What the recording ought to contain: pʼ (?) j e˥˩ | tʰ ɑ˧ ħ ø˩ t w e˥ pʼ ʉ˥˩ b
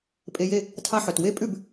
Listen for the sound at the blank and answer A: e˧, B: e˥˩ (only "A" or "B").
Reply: A